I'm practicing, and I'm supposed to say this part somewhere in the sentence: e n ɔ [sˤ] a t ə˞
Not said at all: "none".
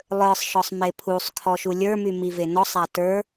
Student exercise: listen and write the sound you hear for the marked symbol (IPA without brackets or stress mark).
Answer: sˤ